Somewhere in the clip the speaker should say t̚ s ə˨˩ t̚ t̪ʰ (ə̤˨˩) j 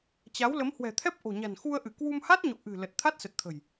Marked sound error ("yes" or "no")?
no